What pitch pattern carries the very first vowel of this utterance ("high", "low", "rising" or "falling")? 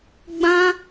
high